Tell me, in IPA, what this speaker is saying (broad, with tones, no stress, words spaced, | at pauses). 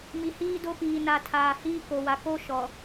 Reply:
mi˨ hiː˦do˦piː˨ na˨tʰaː˨hiː˦ ko˨wa˨ko˦ ʃɔ˨